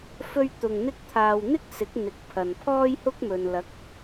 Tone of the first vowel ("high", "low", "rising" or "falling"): high